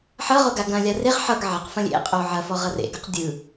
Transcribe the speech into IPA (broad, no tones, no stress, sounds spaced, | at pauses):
ħ ʌ ʁ o ɡ a ɡ ɐ̃ lʲ a r e ʁ ħ ʌ ɡ ʕ ɐ q f ɐ̃ lʲ ḛ qʼ o ʕ ɐ f ɔ ʁ ʌ r ḛ ɡ ʌ q dʲ ɯ